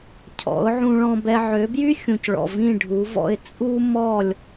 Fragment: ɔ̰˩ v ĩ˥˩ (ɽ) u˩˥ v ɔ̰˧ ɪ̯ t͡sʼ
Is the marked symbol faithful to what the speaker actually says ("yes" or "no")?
no